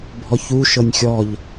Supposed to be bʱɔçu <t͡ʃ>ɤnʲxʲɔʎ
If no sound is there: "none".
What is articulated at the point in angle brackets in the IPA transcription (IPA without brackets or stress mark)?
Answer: ʃ